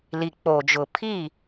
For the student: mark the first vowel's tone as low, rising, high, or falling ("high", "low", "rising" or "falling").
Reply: low